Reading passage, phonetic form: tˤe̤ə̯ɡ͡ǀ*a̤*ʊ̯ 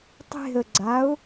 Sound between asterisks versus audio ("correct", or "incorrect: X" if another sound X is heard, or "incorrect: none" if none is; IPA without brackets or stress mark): incorrect: a